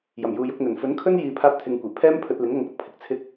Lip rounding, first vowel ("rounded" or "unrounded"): unrounded